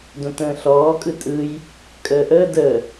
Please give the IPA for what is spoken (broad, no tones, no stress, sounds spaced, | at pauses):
d õ t ə̃ː ɬ ɔː kʼ ɯ tʼ ɯ j | kʼ əː ʔ əː d əː